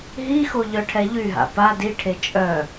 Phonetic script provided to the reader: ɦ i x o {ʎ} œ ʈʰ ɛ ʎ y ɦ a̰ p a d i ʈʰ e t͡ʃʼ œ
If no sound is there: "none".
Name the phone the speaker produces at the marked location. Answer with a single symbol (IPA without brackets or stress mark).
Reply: ʎ